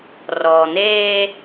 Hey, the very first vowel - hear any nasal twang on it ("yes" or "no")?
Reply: no